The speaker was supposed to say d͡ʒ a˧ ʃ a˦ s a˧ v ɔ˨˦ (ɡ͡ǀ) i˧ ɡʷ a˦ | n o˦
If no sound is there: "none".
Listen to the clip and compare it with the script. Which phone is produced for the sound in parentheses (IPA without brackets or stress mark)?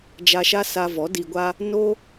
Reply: d